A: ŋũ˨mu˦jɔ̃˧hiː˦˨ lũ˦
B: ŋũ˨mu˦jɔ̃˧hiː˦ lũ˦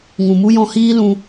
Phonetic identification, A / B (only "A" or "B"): B